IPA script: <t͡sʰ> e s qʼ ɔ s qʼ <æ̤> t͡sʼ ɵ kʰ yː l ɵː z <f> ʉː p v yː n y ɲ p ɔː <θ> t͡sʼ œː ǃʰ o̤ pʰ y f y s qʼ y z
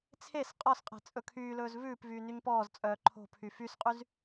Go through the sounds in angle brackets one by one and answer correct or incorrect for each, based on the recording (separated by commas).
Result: correct, incorrect, incorrect, incorrect